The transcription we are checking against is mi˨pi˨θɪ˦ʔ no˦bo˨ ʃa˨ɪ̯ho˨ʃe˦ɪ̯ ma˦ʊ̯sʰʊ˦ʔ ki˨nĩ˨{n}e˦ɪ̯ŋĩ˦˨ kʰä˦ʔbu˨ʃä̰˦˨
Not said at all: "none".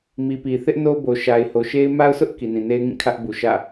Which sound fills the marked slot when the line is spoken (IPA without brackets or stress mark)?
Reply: n